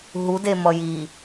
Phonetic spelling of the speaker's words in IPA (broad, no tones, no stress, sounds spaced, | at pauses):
ɦ u d e m ʌ j i